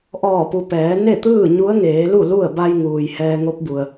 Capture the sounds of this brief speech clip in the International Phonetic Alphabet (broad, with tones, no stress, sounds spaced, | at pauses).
ʔ ɔː˧˩ p u˩ p ɛː˩˧ n e˥˨ t̪ ɯː˥˨ ɲ u˧˥ ə̯ ŋ eː˩˧ l u˥˨ l u˥˨ ə̯ b a˧ j ŋ uː˩ j h ɛː˧ ŋ o˧˥ p̚ b u˩ ə̯